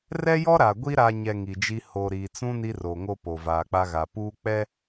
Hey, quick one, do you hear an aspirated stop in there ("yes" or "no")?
no